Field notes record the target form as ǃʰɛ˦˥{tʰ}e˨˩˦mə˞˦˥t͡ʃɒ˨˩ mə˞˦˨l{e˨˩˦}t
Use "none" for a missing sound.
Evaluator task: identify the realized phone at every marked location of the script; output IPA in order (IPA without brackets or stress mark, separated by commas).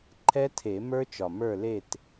tʰ, e˦˨